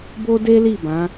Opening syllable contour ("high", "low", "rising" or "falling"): high